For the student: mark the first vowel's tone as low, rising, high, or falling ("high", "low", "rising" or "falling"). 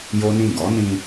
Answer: high